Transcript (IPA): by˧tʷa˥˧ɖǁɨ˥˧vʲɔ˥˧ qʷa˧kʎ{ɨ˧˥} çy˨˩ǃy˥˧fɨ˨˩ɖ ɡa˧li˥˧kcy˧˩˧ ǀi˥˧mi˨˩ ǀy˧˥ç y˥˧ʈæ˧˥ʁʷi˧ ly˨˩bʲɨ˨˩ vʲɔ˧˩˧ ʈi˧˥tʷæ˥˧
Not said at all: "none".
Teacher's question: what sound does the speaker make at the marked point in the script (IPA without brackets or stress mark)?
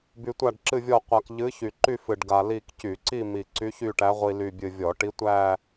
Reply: ɨ˧˥